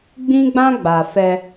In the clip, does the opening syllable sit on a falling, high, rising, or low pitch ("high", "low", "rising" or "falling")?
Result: high